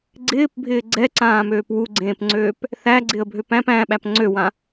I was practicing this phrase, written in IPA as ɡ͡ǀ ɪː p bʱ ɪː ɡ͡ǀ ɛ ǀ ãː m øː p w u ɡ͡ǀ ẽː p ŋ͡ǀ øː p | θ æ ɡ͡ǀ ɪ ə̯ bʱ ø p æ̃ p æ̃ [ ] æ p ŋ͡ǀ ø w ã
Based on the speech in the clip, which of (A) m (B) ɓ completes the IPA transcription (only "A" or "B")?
B